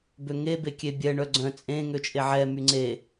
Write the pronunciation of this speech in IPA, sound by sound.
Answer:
b ø ŋ e b e kʲ e bʲ ɛ ɳ œ ɡ͡ǀ œ̃ t͡sʼ ẽ ŋ ø t͡ʃʼ e ʕ ɛ m y ŋ͡ǀ e

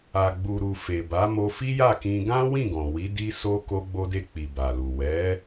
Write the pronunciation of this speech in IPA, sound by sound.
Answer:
a˨ ɡ͡b u˨ ɾ u˨ f e˨ b a˨˦ m o˧ f i˦ j a˦˨ k ĩ˧ ɡ ã˦ w ĩ˦˨ ɡ ɔ̃˨ w i˨˦ d i˦ s o˦ k o˧ ɡ͡b o˧ d e˧ k͡p i˨ b a˨ l u˨ w ɛ˨˦

